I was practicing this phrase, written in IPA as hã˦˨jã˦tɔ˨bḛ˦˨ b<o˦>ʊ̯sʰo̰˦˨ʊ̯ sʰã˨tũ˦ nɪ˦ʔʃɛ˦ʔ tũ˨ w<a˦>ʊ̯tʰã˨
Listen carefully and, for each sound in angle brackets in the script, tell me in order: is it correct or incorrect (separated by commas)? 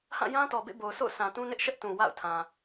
incorrect, incorrect